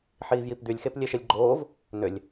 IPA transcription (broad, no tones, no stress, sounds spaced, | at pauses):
ħ iː v j i p d̪ y lʲ x e p lʲ e ʃ e lʲ ɡ͡ǃ oː v | n ʏ lʲ